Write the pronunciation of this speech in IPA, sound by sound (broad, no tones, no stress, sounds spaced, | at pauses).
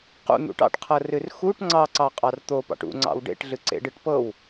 q ṵ n̪ ṵ ʈ ɑ̰ ʈ qʰ ɤ r ɨ r x u ʈ ŋ͡ǀ ɑ ǀ ɑ qʼ ɑ r t̪ o p ɑ̰ ʈ ṵ ŋ͡ǀ ɑ̰ w ɖ ḛ ʈ ɮ ɨ ǀ ḛ ɖ ɨ ʈ p ɤ w